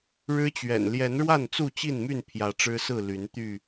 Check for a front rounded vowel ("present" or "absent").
present